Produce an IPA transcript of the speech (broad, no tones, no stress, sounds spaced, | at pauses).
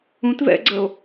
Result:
ũ t v ɛ̰ ɡ͡ǀ ə o̯